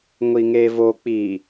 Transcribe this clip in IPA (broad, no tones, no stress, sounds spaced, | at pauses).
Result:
ŋʷ i ŋ e v o k͡p i